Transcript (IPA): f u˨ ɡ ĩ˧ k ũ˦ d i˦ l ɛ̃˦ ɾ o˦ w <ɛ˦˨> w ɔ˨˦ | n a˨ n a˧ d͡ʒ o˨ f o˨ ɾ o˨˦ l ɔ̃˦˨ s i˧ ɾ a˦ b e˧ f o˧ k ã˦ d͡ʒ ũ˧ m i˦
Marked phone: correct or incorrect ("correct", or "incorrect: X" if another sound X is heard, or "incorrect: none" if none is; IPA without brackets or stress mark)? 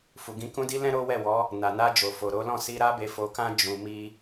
correct